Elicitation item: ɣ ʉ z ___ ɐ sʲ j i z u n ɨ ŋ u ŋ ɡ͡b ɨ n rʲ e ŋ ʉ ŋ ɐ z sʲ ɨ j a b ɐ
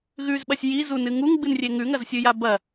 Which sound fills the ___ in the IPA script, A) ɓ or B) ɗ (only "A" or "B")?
A